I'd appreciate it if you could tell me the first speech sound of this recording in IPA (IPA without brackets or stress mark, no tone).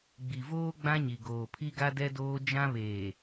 ɡ͡b